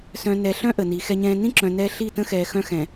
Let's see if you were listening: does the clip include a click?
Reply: yes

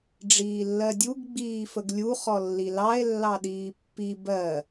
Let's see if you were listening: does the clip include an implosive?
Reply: yes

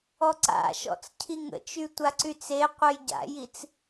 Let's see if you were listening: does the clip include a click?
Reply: yes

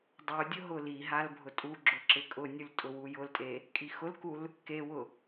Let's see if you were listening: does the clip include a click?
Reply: yes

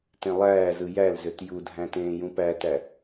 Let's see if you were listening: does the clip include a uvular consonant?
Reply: no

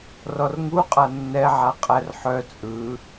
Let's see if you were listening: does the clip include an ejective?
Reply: yes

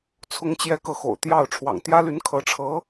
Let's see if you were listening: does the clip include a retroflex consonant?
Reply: yes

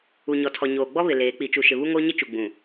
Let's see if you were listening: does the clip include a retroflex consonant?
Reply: no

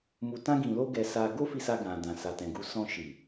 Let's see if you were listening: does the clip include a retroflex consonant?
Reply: no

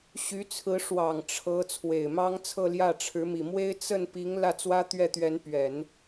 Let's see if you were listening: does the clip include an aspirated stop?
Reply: yes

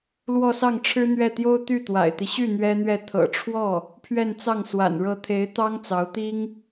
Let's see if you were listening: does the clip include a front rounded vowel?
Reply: yes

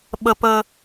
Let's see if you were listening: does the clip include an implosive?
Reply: yes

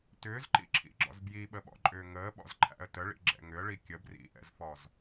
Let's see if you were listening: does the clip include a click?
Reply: yes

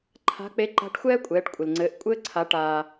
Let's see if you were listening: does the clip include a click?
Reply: yes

